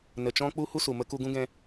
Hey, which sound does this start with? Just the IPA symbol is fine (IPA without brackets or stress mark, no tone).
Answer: n